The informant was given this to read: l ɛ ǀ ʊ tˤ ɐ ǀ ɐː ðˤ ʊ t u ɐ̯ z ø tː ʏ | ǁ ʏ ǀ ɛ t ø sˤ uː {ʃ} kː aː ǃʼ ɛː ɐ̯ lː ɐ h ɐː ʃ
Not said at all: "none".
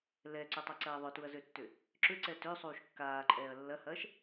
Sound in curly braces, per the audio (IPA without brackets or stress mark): ʃ